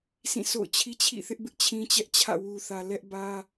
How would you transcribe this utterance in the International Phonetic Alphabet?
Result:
sʰ ĩ˦˨ sʰ o̰˦˨ ʊ̯ t͡ɕʰ i˦ t͡ɕʰ ḭ˦˨ θ ɪ˦ ʔ b ɪ˦ ʔ t͡ɕʰ ĩ˦ t͡ɕ ɛ˦ ʔ t͡ɕʰ ä̰˦˨ w u˨ θ ä˨ l ɛ˦ ʔ b ä˦

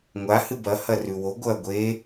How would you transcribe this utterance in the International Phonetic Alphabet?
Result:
ŋʷ a h ɨ b ɐ h ɐ r ʉ w o ɡʷ ɐ ɡʷ e

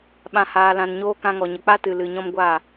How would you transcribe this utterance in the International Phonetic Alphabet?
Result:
ɓ ã˨ h aː˨ l ã˨ n ɲ oː˧ k ã˧ ŋ ɔ˨ ɲ ə˨ k͡p a˦ t ɨ˨ l ɨ˨ ɲ ɔ̃˦ m ɡʷ aː˦˨

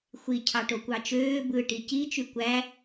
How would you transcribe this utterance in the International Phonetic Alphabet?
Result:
xʷ i cʰ ɑ ʈ o kʷ ɑ t͡ʃ øː b ɯ ʈ i c i t͡ʃ y kʷ æ

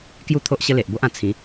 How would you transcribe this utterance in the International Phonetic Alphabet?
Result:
k j u˥˧ t̪ʰ o˦ ʔ ɕ ə˦ l e˨ ʔ b o˦ ʔ ã˨˩ t͡sʰ ĩ˨˦

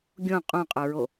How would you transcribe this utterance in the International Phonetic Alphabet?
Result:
ɡʲ õ qʼ õ qʼ ə˞ ɹ o

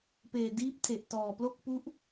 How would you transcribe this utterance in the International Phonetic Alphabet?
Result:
p eː˨˩ d iː˦˥ p̚ tʰ e˨˩ ʔ t ɔː˨˩ p l o˥˩ k̚ p u˦˥ ʔ

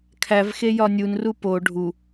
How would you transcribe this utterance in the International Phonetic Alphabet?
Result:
kʰ æ v x e j ɒ nʲ u n r u p o ɖʱ u

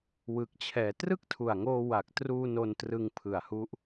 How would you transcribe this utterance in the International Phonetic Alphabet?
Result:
w ɯ˨˩ k̚ t͡ɕʰ ɛː˩˦ t r ɯ˥˩ k̚ tʰ u˨˩ a̯ ŋ oː˧ w a˨˩ k̚ t r uː˧ n o˧ n t r ɯ˧ ŋ pʰ ɯ˨˩ a̯ h u˦˥ ʔ

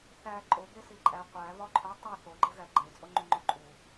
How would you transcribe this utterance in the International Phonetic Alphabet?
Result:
θ æ ǃʼ o b e s i ǃʼ æ qʷ æ β ɒ ǃʰ o tˤ i θ o ɡ͡ǃ e ɣ æ ɡ͡ǃ e t͡sʼ o ŋ͡ǃ u ŋ͡ǃ o ǃʼ u

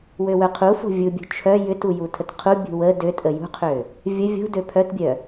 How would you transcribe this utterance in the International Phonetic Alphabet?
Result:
w ø w œ qʰ u f o̤ vʲ u bʲ ṳ t͡ʃʰ œ j ʏ t u j u tʰ ə t qʰ u bʲ ṳ w ə d ø tʼ ə j ṳ qʰ ø | vʲ ə vʲ o̤ d ø pʰ œ t bʲ œ

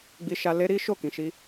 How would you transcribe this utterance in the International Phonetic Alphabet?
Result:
ɡ͡b i˧ ʃ a˧ l e˦ ɾ i˦ ʃ o˦˨ k ĩ˨ ʃ i˧

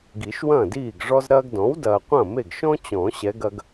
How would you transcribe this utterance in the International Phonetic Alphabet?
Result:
ɡ i˨˩˦ ʃ w ɐ̃ː˥˩ d iː˥˩ ɡ ʐ ɔ˥ z ɾ ɐː˥ ɡ d ɔ̃˩˥ w d ɐː˨ qʷ ɐ̃˥˩ m e˥˩ ɡ ʃ ɔ̃˥ t͡ɕ ɔ̃˨˩˦ ɕ ɛ˧˥ ɡ ɐ˥ ɡ

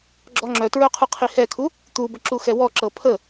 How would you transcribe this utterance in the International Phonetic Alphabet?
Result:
ɡ͡ǁ ɔ ŋ͡ǁ œ t ɹ œ qʰ u qʰ i h ɛ kʰ u | t̪ u b ə ǁ u x ɛ w ɔ ǁ ɤ pʰ ə

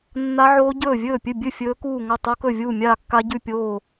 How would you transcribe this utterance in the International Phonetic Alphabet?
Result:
nː a˦˥ ʕ oː˦˥ ɟ ɵː˥˩ vʲ ɵː˥˩ pʲ ɨ˥˩ bʲ ɨ˥˩ fʲ ɵː˦˥ k uː˥˩ ŋ ɐ˥˩ tˤ o˦˥ k ɵ˥˩ vʲ uː˥˩ mʲ aː˥˩ kː a˦˥ ɟ ʉ˥˩ pʲ oː˥˩

